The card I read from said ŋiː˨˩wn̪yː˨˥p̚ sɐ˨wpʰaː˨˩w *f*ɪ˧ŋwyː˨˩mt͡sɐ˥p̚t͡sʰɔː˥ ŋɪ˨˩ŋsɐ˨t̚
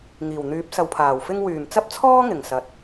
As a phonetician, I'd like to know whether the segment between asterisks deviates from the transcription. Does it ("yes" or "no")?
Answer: no